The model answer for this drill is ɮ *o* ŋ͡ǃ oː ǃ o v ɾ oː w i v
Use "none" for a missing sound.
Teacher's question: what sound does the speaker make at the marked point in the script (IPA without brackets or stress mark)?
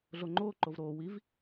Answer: o